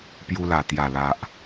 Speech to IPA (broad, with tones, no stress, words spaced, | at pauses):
pju˧la˨˩ t̪ja˨˩ la˨ʔ